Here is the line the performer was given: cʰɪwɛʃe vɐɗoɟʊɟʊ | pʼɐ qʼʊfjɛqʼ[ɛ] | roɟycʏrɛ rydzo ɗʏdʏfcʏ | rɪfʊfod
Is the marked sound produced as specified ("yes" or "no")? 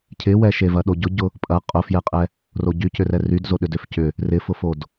yes